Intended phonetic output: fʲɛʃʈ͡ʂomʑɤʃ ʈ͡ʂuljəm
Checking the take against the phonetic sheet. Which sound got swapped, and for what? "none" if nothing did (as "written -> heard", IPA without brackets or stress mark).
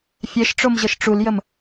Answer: none